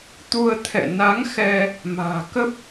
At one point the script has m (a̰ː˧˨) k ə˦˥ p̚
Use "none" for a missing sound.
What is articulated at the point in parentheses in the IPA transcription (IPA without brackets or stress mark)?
a̤ː˨˩